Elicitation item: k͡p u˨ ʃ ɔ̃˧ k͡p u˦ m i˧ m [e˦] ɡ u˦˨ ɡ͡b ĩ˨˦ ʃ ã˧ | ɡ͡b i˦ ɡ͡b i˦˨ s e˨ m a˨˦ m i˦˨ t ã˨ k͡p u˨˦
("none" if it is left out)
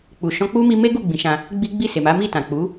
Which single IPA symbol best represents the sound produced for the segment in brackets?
e˦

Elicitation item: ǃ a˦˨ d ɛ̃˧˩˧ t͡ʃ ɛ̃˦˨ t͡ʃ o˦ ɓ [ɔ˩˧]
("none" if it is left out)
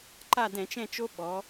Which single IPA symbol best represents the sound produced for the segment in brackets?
ɔ˩˧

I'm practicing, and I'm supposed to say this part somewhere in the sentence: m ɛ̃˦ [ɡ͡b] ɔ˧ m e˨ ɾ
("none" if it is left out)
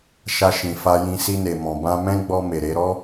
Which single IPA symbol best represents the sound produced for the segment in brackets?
ɡ͡b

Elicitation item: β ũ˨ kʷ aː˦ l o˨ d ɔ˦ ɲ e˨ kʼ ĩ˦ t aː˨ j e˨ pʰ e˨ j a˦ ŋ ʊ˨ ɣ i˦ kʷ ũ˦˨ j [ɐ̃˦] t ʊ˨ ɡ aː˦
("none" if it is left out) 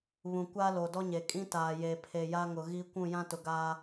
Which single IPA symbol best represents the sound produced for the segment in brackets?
ã˦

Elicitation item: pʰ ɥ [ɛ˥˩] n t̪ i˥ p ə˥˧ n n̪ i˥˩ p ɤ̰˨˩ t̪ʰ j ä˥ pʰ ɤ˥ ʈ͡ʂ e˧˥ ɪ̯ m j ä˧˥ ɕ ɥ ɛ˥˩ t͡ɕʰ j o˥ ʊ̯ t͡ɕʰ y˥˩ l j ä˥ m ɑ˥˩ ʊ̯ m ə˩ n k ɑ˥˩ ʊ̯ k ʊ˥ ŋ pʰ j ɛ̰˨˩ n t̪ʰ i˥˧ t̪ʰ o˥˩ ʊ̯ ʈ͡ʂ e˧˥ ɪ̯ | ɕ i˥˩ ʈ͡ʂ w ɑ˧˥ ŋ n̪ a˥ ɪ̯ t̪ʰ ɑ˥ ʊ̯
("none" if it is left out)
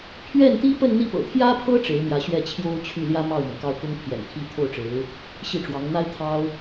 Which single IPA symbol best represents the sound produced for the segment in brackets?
ɛ˥˩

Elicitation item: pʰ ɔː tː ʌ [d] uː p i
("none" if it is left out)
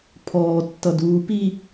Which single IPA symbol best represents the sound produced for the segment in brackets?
d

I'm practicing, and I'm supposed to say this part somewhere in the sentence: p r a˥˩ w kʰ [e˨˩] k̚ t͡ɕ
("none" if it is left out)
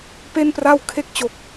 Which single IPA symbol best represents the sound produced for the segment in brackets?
e˦˥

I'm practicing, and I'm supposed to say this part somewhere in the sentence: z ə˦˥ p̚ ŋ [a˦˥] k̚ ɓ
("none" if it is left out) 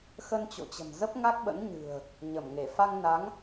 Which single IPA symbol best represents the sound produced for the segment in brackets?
a˦˥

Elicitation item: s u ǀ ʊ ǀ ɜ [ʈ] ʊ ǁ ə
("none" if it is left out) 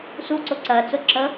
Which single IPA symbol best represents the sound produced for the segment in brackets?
t͡s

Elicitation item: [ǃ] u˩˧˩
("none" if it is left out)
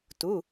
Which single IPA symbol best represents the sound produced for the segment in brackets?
t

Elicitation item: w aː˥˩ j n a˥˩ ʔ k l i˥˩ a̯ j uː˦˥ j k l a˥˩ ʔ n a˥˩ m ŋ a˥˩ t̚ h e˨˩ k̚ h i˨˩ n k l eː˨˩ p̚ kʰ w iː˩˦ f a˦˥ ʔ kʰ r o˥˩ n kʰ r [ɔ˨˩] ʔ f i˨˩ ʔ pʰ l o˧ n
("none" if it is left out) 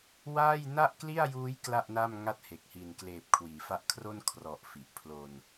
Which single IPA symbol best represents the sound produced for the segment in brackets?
ɔ˨˩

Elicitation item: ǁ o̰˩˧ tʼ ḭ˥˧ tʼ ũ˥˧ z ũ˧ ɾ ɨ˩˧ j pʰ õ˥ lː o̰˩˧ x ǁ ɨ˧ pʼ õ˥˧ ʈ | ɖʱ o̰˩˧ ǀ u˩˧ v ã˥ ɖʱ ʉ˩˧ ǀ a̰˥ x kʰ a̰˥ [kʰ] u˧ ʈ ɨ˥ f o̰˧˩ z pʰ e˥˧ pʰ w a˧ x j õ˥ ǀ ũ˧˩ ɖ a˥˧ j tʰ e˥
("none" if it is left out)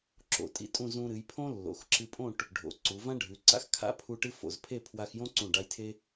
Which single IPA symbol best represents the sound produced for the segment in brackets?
pʰ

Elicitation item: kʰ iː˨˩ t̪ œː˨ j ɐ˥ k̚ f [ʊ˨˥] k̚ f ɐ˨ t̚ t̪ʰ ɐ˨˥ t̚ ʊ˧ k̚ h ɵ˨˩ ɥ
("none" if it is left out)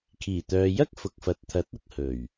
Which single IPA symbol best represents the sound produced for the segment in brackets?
ʊ˨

